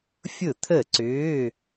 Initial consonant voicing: voiceless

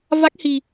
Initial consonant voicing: voiced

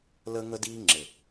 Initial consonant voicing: voiced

